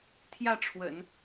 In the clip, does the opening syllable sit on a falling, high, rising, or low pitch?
falling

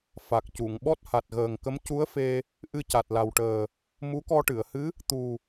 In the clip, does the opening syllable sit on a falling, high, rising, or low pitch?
low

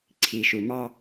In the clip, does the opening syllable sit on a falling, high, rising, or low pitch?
low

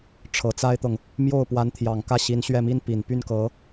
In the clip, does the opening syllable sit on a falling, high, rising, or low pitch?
low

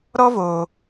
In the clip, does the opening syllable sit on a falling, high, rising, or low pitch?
high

